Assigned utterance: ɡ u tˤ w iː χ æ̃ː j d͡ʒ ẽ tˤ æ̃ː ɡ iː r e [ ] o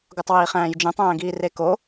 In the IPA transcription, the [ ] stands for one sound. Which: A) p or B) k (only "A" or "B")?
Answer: B